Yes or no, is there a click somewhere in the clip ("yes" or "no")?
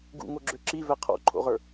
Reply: yes